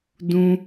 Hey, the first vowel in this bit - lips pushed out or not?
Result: yes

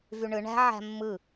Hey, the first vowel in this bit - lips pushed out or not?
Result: yes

